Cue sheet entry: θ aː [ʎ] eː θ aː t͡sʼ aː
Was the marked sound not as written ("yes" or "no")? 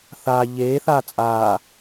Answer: no